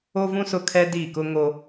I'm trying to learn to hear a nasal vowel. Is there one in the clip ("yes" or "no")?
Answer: yes